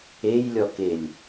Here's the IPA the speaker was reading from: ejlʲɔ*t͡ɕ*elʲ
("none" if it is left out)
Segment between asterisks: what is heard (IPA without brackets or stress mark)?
k